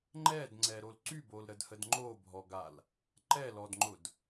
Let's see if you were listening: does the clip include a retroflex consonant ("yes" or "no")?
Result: no